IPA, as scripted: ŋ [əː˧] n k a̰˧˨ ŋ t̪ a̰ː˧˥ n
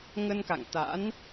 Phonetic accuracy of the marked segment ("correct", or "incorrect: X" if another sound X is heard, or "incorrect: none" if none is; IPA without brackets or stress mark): incorrect: ə˧